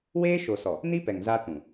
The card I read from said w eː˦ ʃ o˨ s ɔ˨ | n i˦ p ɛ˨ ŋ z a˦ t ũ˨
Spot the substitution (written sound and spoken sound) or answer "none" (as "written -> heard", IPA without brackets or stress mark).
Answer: none